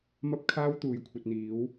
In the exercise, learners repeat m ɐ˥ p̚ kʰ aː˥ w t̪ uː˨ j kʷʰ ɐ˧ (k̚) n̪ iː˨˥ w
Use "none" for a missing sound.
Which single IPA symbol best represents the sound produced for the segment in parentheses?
t̚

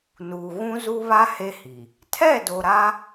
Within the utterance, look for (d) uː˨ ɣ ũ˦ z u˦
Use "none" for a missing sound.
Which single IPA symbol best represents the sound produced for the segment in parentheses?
n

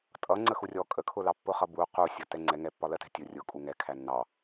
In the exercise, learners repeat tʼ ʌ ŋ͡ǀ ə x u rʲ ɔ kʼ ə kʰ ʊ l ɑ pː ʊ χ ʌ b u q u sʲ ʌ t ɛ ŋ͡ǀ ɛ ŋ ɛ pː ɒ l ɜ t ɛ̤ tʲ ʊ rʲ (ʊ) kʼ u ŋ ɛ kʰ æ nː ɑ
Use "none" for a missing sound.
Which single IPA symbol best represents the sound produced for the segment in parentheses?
ʊ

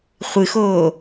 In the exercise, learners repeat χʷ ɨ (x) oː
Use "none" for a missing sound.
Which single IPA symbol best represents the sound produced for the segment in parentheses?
x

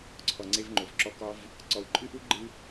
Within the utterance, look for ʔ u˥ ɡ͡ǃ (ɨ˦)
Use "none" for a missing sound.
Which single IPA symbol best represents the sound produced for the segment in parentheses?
ɨ˥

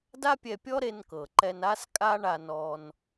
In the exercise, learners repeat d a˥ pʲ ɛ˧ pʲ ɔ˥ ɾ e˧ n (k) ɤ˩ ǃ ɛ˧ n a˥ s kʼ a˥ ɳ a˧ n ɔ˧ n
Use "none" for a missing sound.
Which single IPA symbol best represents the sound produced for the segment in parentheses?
k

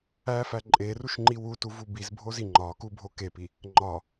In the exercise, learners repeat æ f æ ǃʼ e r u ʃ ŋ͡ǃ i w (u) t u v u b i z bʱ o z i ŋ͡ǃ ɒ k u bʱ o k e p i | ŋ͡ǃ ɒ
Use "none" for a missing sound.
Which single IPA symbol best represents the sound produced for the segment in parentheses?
u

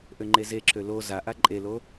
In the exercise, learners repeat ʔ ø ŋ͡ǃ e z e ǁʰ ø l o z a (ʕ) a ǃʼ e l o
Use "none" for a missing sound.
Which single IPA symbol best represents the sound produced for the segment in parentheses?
ʔ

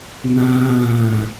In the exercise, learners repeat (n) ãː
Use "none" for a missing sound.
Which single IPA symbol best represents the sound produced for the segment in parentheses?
n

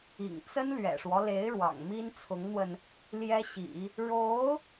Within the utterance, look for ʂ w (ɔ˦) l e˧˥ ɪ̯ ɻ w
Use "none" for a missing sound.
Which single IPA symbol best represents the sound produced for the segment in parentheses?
ɔ˦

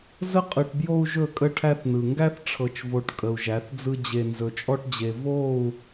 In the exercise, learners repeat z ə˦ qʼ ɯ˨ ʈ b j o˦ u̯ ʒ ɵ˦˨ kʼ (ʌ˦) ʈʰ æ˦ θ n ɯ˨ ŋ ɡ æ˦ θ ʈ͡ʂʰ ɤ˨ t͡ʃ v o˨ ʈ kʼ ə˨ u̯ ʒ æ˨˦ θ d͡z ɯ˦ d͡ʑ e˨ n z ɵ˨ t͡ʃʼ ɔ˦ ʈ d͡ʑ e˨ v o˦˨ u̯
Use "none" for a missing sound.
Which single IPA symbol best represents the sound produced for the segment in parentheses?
ə˦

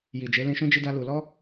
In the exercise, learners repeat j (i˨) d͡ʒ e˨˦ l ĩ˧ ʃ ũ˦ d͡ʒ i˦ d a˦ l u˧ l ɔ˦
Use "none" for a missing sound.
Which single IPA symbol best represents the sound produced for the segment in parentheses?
i˨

